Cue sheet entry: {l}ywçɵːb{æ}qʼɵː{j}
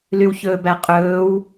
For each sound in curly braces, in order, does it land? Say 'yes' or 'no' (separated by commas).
yes, yes, no